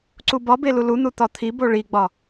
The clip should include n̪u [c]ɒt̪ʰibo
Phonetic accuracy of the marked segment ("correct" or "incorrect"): incorrect